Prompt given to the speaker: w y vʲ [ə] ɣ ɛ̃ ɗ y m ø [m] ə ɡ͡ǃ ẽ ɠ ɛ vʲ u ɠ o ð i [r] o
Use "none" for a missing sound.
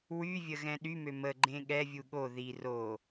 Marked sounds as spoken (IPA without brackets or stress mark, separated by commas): ə, m, r